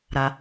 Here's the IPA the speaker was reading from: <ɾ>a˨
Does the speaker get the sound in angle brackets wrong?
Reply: no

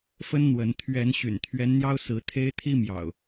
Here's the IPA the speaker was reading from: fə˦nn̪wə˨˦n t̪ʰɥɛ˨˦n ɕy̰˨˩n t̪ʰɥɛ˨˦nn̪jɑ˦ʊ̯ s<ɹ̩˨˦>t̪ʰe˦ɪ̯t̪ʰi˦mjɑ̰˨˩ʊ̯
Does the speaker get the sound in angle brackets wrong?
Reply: no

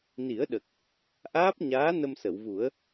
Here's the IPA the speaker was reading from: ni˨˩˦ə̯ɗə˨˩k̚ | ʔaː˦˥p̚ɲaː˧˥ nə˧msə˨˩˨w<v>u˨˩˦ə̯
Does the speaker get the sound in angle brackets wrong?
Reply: no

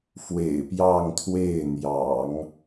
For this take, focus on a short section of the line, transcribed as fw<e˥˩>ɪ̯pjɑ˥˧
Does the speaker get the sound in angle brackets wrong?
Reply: yes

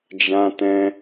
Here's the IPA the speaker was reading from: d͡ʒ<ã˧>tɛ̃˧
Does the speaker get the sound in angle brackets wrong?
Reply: no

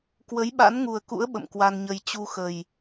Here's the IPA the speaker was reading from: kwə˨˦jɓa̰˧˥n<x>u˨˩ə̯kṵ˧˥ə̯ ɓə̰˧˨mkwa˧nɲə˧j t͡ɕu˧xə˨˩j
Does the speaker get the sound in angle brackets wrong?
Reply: yes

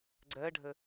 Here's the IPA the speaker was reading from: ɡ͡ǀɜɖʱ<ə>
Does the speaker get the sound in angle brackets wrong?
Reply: no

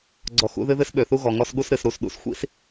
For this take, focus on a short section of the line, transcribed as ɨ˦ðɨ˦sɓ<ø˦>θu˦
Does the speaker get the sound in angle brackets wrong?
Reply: yes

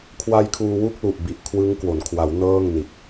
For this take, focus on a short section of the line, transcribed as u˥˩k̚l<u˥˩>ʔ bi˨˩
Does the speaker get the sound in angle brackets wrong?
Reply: yes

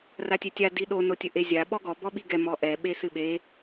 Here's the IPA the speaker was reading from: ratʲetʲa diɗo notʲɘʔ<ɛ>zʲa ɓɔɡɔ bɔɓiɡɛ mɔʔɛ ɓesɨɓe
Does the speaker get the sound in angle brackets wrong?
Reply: yes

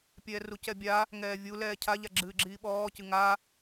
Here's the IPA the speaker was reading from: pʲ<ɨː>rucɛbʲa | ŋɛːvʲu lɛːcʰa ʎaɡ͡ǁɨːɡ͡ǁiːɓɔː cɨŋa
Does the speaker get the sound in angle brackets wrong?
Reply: yes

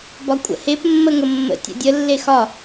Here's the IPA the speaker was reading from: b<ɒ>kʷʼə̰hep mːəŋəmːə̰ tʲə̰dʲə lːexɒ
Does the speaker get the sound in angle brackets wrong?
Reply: no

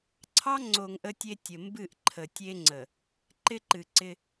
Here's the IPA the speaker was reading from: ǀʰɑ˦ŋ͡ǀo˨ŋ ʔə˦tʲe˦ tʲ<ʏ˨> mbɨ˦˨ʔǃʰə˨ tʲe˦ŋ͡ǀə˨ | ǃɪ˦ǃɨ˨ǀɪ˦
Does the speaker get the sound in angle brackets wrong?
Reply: yes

